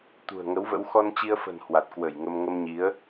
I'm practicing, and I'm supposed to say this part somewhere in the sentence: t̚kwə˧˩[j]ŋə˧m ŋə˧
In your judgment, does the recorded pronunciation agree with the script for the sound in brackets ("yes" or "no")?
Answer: yes